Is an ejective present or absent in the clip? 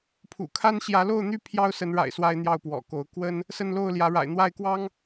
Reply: absent